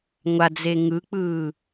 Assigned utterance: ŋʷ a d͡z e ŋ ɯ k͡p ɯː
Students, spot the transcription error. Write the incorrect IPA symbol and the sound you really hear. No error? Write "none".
none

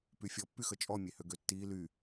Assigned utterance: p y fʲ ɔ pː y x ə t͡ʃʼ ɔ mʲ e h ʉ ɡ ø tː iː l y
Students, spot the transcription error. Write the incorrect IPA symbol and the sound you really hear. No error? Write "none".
ʉ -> ø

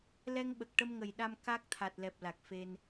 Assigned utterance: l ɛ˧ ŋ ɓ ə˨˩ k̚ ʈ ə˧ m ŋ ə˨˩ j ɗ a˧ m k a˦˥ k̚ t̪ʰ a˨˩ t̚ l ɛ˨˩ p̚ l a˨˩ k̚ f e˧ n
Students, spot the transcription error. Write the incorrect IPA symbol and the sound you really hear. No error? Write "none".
none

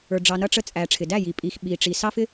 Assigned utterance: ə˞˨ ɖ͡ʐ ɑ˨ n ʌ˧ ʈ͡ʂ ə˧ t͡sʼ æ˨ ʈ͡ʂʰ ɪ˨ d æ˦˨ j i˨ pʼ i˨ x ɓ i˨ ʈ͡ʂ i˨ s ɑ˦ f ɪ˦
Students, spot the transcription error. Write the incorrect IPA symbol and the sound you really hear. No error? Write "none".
none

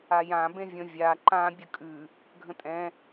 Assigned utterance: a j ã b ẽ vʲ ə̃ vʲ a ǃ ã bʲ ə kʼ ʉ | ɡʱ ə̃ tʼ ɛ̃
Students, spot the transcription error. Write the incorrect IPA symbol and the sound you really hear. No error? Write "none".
none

